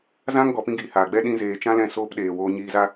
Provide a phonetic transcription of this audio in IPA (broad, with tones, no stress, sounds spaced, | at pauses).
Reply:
z ã˦ ŋ ɡ ɔ˨ p ĩ˧ ɡ iː˨ h aː˨ ɡ͡b ɛ˦ ɗ ĩ˧ z eː˨ t͡ʃ ã˦ l ɛ̃˦˨ s oː˦ p ɗ eː˨ w oː˧ ɲ iː˧ z a˦